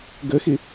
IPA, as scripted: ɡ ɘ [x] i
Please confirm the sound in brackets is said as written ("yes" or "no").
yes